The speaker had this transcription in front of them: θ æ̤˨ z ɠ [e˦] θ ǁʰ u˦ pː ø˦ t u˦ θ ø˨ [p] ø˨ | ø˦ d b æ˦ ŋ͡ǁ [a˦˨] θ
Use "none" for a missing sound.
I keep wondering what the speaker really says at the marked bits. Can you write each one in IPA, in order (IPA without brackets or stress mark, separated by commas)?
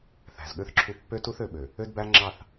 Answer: ø˦, ɓ, ɑ˦˨